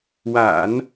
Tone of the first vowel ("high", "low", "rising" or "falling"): low